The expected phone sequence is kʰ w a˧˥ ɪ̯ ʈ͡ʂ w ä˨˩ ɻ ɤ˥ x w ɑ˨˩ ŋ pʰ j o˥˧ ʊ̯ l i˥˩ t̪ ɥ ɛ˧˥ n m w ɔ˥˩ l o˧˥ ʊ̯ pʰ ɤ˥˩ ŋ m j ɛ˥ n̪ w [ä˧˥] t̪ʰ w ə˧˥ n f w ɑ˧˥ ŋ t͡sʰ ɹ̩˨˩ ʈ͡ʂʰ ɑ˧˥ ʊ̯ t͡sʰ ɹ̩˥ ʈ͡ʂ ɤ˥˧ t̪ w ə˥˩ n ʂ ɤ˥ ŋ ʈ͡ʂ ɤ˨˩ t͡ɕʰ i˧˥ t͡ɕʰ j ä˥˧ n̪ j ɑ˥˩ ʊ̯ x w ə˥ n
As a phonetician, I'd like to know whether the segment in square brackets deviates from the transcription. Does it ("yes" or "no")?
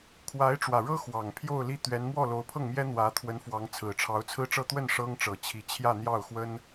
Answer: no